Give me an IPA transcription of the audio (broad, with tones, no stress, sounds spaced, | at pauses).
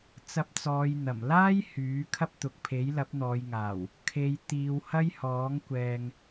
t͡s ɐ˧ p̚ t͡s ɔː˨˧ j n̪ ɐ˨˩ m l aː˥ j h yː˨˥ kʰ ɐ˥ p̚ t̪ ʊ˨ k̚ pʰ e˨˥ j l ɐ˨˥ p̚ n̪ ɔː˨˧ j ŋ aː˨˩ w | kʰ e˨˧ j t̪ iː˨˧ w h ɐ˥ j h ɔː˨˥ ŋ kʷ ɛː˨ ŋ